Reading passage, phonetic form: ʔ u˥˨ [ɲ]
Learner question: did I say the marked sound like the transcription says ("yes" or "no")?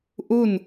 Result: no